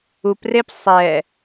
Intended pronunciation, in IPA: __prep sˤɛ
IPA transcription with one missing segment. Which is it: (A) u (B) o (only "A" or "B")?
A